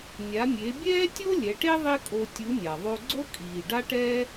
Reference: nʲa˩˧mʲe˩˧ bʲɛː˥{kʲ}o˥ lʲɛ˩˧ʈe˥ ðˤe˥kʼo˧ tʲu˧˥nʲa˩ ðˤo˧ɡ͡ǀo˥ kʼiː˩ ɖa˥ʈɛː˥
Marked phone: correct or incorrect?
incorrect: tʲ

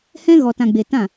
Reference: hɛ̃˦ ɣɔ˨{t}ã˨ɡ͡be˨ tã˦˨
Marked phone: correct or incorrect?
correct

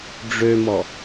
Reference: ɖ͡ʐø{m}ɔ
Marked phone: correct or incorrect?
correct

